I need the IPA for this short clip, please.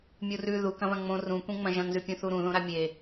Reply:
mʲ u r ʉ ð u k ɐ̃ β ɐ̃ ŋ͡m õ r ũ kʷ ẽ ŋ͡m ɐ̃ ʒ ɐ̃ ŋ z ʉ pʲ ũ θ u ɾ ũ ð õ ɾ a mʲ e

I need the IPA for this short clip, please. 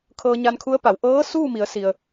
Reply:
kʰ ɤː˧ ɲ a˧ n kʰ u˧˥ ə̯ p a˩˧ w ʔ ɤː˧˥ s uː˥˨ m i˩˧ ə̯ s i˩ ə̯

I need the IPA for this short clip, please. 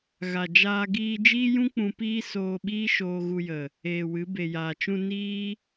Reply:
ɣ a˨ d͡ʒ aː˧ ɡ iː˧ d͡ʒ iː˦ j ũ˦ k͡p ũ˧ p iː˦ s oː˧ ɓ iː˦ ʃ oː˧ ɣ u˧ j ə˨ | eː˨ w ɨ˨˦ b e˨ j aː˨ t͡ʃ ũ˧ n iː˦

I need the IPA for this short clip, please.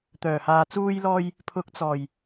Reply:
t̪ œː˨˩ h aː˨ t͡s uː˧ j l ɔː˧ j | pʰ ʊ˨˥ k̚ t͡s ɔː˨˩ j

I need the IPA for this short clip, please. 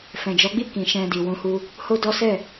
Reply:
f ɛ̃˨ d͡ʒ ɔ˨˦ ɡ͡b i˦˨ k ĩ˨ ʃ ɛ̃˧ d i˨ w ũ˨˦ h u˧ | h o˦ d ɔ˦ s ɛ˦˨

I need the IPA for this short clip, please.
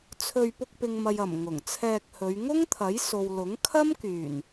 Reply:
t͡sʰ ɵ˧ ɥ p ʊ˧ k̚ p ɪ˨ ŋ m ɐ˨ j ɐ˨˩ m ŋ ʊ˨˩ ŋ t͡sʰ ɛː˧ k̚ h ɵ˨˧ ɥ ŋ ʊ˥ ŋ t̪ʰ ɐ˨˥ j s o˨ w l ʊ˨˥ ŋ kʰ ɐ˥ m k yː˨˩ n

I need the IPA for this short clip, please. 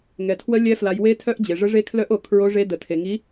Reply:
ŋ ɛ˨ tʰ w ə˧˥ lʲ ɛ˧˥ f l a˨ j w e˧˥ tʰ œ˧˥ ʔ d͡ʑ e˨ ʐ ə˧˥ ʐ e˧˥ kʰ l œ˧˥ ʔ o˨ kʰ ɹ o˧˥ ʐ e˧˥ d ə˨ tʰ e˨ ŋ i˧˥

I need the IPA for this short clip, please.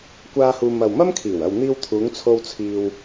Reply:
kʷ aː˧ h uː˨ m ɐ˨ w m ɐ˥ m kʰ iː˨˩ w ɐ˨ w n̪ iː˧ w t̪ʰ uː˨˧ ŋ t͡sʰ o˧ w t͡sʰ iː˧ w

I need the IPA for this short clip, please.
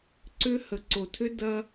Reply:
ǀ ʏ˦ h ə˨ ǀ o˨ tʰ ʏ˦ d ɐ˦

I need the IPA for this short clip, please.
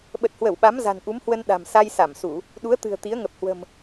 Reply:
ɓ ə˨˩ t̚ h w ə˧˩ w ɓ a˨˦ m z a̤˨˩ n ʔ u˨˦ m h w ə˧ n ɗ a̤˨˩ m s a˧ j s a˧˩ m s u˧˩˨ | ɗ u˨˦ ə̯ t̪ ɨ̤˨˩ ə̯ t̪ i˨˦ ə̯ ŋ ə˨˩ p̚ h w ə̤˨˩ m

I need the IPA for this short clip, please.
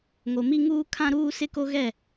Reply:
ŋ o˨ m i˦ ŋ uː˦ kʰ ã˦ ɾ uː˦ s ɪ˦ k o˦ ɣ ɛ˦˨

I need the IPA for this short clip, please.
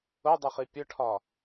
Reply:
ʊ dˤ ə χ i pʲ ʊ ʈʰ ɒ

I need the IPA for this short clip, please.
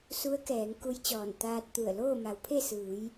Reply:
s u˧˥ ə̯ k ɛː˩˧ ŋ k u˧˥ j t͡ɕ ɔː˧˩ n t̪ aː˧ t̚ t̪ u˧˩ ə̯ l oː˥˨ m a˩˧ w pʰ e˥˨ s ɯː˩˧ j

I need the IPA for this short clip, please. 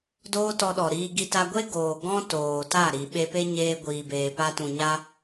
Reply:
d oː˦ t ɔ˧ ɗ ɔ˨ ɾ iː˧ ɡ i˧ t a˧ ɡʷ e˦ ɡ oː˨ ɡ ɔ̃˦ t oː˨ t a˦˨ ɾ i˨ ɓ e˧ p e˦ ɲ eː˧ ɡʷ iː˨ b eː˨ p a˧ t ũ˨ ɲ a˦

